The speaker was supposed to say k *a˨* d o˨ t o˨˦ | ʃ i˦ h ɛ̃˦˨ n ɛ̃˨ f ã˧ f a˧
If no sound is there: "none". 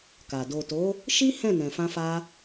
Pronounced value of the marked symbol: a˨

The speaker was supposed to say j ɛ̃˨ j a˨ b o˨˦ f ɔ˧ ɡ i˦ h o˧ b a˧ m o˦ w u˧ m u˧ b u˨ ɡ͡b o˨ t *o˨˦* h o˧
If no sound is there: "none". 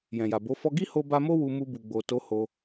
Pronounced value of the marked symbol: o˨˦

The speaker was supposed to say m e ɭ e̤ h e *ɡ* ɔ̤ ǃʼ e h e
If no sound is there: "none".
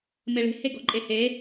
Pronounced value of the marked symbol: ɡ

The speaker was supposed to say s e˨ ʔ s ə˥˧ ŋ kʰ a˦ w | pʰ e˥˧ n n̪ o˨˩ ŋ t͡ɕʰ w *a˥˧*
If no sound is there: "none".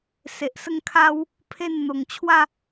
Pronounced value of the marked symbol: a˥˧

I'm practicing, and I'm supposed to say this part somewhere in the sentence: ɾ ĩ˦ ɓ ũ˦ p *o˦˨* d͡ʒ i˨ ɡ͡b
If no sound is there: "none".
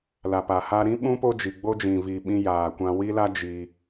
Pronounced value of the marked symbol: o˦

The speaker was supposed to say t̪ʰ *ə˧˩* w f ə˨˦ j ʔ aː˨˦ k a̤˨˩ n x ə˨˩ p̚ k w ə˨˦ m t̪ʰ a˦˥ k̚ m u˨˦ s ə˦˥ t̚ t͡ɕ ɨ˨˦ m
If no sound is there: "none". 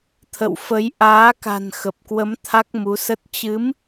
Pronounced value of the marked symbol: ə̰˧˨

